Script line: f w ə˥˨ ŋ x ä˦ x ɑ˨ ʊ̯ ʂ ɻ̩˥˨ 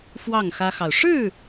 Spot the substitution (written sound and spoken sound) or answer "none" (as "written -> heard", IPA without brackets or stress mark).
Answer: ə˥˨ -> ɑ˥˨